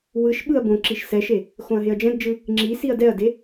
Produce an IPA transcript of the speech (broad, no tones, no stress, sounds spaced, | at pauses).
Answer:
w ɯ ʃ ɓ ɯ ɐ̯ b õ ǁ i ʃ s ɛ ʃ e | x õ ɐ̯ ɦ e ɐ̯ d͡ʒ ɛ̃ d d͡ʒ ɯ | ŋ͡ǁ i s i ɐ̯ d ɛ ɐ̯ d e